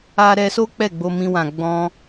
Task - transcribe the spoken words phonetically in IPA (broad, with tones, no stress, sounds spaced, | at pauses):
a˦ ɾ ɛ˧ s o˦ k͡p ɛ˦˨ ɡ͡b o˧ m ĩ˧ w ã˨ ɡ͡b ɔ̃˧